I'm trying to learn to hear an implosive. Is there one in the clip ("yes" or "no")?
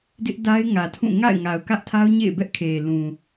no